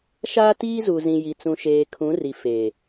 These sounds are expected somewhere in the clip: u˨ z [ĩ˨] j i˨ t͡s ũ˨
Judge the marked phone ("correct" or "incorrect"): correct